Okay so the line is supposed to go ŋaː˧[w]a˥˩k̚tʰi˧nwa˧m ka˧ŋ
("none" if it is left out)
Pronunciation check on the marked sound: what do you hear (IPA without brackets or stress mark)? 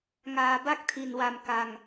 b